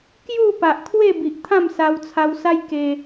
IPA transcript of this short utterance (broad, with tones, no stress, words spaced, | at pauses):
kju˥˧pa˨ʔkʰwe˥˧ bi˨ʔt̪ʰã˥˧msa˧wt͡sʰa˧w sa˦jke˧